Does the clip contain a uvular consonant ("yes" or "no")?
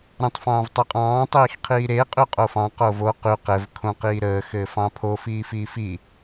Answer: yes